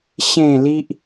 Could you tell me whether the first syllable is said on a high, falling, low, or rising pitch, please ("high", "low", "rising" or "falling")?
falling